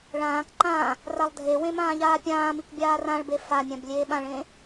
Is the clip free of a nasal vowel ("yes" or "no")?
no